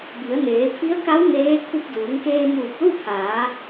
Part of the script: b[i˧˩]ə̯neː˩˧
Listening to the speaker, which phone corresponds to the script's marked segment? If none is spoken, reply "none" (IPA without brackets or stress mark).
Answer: i˩˧